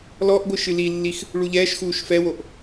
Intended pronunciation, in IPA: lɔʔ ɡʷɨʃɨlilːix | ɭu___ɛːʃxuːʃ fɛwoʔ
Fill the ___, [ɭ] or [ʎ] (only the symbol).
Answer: ʎ